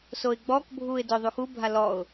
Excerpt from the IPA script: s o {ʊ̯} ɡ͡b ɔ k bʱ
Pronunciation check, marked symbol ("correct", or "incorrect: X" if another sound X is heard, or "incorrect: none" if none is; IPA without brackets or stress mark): incorrect: ɪ̯